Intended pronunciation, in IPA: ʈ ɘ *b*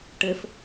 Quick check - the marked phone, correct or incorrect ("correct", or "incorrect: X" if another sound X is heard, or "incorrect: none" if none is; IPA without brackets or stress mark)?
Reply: incorrect: f